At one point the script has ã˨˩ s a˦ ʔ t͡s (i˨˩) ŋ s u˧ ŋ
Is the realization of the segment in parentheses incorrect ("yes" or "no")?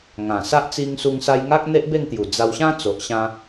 yes